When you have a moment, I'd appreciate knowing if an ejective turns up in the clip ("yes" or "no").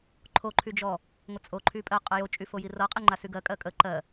yes